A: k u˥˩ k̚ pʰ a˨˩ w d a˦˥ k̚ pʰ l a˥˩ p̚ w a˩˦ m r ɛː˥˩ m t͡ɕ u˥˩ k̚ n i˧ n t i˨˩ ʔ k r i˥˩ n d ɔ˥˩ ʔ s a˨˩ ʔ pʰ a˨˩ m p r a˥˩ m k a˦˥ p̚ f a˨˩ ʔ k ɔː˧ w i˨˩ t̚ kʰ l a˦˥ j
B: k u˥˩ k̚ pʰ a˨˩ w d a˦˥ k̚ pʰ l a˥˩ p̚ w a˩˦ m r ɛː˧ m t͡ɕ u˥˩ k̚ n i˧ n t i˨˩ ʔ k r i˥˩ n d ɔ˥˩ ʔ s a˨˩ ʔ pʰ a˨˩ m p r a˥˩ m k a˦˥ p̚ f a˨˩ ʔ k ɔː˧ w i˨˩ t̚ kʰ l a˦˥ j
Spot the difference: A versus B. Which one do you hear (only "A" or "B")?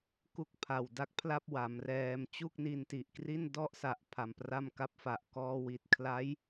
B